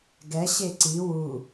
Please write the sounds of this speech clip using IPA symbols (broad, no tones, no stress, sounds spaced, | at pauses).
ɡ ɛ ɕ e ǀ i w u